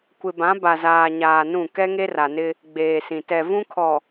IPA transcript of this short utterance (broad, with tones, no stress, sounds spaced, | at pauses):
kʷ ɪ˨ b ã˨˦ b a˨ z aː˨ ɲ aː˨ n ũ˦˨ k ɛ˦ ŋ e˦ r a˨ n ɪ˦ | ɡ͡b eː˨ s ĩ˨ t ɛ˨ v ũ˦ kʰ ɔ˨